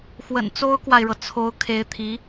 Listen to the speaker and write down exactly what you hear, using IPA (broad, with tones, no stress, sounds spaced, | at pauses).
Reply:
x w ə̰˨˩ n t͡s o˥ ʊ̯ k w a˨ ɪ̯ ɻ ɤ˩ t͡sʰ o˧˥ ʊ̯ kʰ e˧˥ ɪ̯ t̪ʰ i˧˥